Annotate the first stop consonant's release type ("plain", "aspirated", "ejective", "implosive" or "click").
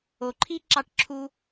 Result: click